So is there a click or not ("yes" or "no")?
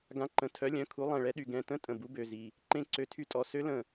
yes